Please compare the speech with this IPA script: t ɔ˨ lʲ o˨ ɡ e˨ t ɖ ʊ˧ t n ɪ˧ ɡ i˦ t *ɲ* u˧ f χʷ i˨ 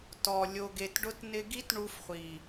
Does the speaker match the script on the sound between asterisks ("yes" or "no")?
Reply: no